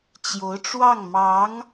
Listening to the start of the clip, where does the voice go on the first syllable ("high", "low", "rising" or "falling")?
rising